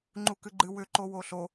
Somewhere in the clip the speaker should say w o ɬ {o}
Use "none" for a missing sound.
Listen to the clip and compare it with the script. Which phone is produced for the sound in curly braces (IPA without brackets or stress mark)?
o